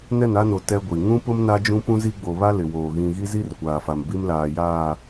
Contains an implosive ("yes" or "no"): no